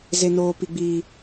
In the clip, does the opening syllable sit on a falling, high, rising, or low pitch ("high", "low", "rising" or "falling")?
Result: high